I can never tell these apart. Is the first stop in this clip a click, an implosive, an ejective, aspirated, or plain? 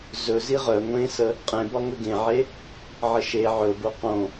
ejective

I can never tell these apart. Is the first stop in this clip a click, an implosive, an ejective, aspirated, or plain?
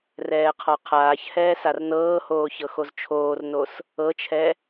aspirated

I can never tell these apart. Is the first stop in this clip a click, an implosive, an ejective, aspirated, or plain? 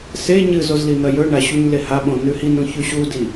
implosive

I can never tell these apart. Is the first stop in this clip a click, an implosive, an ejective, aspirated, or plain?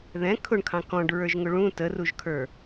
aspirated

